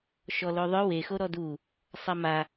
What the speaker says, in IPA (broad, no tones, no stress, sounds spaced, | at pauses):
ʃ ɔ l o ðˤ œ w e x o ɾ ɔ d u | sˤ a m a